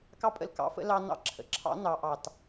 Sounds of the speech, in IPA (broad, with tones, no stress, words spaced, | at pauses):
kɑ˥pʼə̰˧l kɑ̰˩˧fə̰˧ lɑ˧nɑ̰˧ ǁʰə̰˩ǁʰɑ̰˧˥ nɑ˩˧ ʔɑ˩t